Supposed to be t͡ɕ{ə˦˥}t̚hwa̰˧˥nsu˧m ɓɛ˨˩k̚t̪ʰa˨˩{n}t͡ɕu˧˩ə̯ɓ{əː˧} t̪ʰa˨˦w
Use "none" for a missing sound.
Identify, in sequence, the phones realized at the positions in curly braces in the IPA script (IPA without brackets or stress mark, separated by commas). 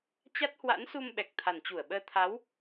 a˦˥, n, əː˧